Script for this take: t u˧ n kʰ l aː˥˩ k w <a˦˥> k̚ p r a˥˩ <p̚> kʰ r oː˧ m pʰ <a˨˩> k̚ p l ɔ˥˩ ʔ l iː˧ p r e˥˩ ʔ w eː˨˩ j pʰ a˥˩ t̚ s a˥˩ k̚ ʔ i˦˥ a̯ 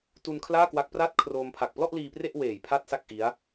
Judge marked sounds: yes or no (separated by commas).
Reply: yes, no, yes